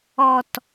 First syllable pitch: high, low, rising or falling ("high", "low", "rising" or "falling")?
low